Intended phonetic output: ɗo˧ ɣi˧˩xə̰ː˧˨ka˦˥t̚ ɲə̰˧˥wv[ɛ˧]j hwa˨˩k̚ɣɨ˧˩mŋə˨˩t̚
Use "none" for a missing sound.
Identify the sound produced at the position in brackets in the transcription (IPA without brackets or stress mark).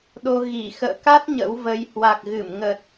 ə˧